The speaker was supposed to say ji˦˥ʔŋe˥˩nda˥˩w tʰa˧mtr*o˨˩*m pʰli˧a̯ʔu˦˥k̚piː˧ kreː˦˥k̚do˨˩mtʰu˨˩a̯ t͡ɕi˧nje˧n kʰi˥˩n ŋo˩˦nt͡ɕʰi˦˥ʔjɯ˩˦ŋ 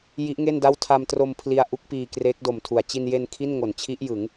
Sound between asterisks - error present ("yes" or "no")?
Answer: yes